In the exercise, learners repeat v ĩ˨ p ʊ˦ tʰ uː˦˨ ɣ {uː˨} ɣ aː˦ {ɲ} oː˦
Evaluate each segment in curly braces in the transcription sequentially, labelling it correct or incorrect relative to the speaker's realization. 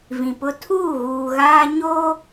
correct, correct

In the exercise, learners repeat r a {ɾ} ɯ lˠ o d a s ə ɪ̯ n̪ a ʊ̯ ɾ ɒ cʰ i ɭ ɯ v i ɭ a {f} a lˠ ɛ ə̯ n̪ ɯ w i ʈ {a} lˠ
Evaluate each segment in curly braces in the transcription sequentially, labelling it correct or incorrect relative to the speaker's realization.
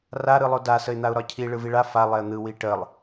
correct, correct, incorrect: ə

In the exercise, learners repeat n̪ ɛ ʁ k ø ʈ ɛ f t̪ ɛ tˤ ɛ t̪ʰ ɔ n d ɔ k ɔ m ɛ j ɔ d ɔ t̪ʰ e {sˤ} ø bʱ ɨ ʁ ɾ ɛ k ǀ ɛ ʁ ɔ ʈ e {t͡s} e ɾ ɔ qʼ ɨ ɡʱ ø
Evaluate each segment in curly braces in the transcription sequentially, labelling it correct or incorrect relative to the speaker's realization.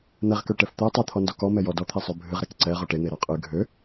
correct, incorrect: n̪

